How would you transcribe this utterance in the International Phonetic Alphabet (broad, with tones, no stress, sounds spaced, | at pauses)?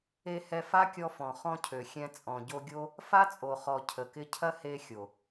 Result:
e˧ h ɛ˧ f a˦ kʲ ɔ˧ f ɔ̃˨ χ ɔ̃˧ cʰ ø˨ xʲ ɛ̃˧ t͡sʼ ɔ̃˨ ɟ o˧ ɡʲ o˦ | f a˦ t͡sʼ o˨ χ ɔ˨ cʰ ə˨ k ɪ˧ cʰ ɐ˦ h e˧ xʲ o˨